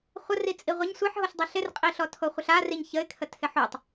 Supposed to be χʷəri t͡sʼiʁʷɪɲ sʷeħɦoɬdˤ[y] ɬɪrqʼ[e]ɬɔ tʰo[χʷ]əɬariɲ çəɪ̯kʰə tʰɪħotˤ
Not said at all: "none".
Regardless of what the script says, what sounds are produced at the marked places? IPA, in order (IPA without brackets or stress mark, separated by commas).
e, i, χʷ